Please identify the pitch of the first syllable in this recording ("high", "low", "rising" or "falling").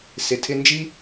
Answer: low